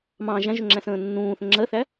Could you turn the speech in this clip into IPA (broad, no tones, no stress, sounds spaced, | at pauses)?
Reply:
m ɑ̃ ʒ æ̃ ʒ ʊ ŋ͡ǁ æ̃ s ə̃ː nː ũː θ ə̃ ŋ͡ǁ ɜ θ æ